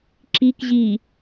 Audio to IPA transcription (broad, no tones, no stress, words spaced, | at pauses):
ǁik ʑi